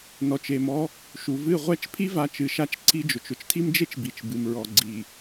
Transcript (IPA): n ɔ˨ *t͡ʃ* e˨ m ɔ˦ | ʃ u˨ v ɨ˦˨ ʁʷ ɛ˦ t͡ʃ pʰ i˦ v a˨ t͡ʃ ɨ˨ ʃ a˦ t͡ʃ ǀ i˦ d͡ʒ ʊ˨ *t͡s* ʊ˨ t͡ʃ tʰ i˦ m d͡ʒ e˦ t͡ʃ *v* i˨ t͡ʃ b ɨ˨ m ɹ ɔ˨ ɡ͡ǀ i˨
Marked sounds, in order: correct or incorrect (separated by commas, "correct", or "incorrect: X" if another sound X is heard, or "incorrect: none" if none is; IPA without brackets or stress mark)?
correct, incorrect: t͡ʃ, incorrect: b